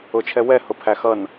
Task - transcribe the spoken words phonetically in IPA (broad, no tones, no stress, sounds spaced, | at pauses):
ʊ t͡ʃʰ ɛ w ɛ h ʊ pʰ æ x ʌ n